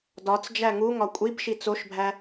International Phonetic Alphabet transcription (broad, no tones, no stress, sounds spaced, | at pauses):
d ɒ t͡s d͡ʒ æ ŋ u ŋ ɒ kʷʼ i b ʃ i t͡s o ʃ bʱ æ